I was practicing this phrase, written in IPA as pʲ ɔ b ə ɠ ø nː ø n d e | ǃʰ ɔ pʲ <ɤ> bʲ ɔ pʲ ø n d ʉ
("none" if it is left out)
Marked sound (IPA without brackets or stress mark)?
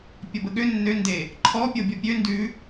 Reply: ɤ